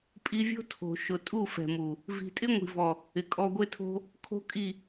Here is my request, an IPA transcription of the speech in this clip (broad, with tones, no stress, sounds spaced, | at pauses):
pʼ i˧ vʲ o̤˦ tʰ o̤˨ ʃ ʊ˨ tʼ u˦˨ f ɛ̤˨ m u˨ | v i̤˨ tʼ ɪ˦ ŋʷ i̤˨ v ɔ˨ | ɪ˨ kʼ ɔ˧ ɡʷ e˦ tʰ o̤˦ | kʰ o̤˦ kʼ i˦˨